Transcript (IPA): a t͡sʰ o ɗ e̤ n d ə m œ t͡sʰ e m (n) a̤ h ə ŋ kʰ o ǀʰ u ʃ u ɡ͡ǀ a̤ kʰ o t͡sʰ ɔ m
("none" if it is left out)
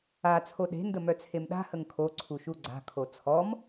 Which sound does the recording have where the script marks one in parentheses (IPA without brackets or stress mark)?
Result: ɗ